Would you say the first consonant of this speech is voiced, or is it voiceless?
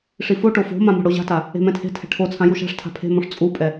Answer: voiceless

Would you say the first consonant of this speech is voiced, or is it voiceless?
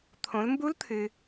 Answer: voiceless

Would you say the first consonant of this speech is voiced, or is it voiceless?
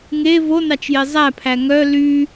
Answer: voiced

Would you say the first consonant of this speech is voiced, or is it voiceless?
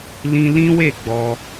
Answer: voiced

